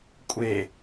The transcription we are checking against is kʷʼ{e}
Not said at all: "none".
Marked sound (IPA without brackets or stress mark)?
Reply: e